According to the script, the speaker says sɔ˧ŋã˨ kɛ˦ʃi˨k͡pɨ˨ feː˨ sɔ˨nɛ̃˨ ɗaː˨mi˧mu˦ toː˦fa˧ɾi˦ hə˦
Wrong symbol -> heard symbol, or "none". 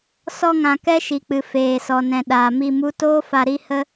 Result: none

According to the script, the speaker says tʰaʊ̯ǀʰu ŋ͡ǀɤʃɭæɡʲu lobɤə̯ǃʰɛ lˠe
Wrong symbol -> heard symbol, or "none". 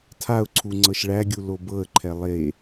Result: none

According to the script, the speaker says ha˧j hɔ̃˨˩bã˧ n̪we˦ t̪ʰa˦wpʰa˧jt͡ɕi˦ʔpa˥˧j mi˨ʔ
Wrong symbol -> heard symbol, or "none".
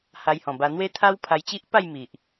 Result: ã˧ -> a˧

